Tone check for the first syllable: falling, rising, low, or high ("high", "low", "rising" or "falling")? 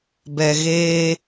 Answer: low